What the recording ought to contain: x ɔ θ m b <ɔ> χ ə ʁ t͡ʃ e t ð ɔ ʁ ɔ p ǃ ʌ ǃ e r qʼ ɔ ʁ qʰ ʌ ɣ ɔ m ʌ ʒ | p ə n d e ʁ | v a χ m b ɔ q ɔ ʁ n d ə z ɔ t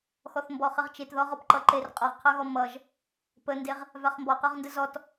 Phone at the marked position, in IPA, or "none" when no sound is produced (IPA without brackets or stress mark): ɔ